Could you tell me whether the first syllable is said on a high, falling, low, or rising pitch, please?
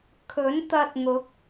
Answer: rising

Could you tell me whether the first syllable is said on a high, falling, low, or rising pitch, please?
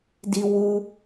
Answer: high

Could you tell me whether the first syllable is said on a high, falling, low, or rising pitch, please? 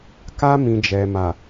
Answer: high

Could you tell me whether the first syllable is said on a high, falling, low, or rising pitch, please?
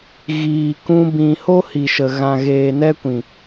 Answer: low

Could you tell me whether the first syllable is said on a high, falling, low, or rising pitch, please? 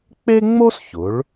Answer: high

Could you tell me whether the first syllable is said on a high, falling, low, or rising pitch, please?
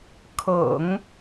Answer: low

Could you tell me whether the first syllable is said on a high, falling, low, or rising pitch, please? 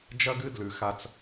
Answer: high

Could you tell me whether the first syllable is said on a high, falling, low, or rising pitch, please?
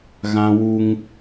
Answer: high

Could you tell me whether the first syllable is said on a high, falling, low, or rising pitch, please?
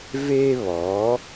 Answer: high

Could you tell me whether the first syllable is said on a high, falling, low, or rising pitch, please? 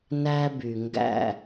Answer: high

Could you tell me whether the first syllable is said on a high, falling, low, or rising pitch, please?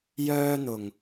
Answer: high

